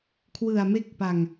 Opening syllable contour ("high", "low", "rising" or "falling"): low